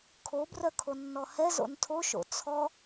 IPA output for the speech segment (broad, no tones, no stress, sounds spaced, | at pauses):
kʰ o b r œ kʰ o nː ɔ h ɛ z o̰ n tʰ o ʃ o̰ t͡sʰ ɔ